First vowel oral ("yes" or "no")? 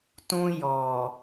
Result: no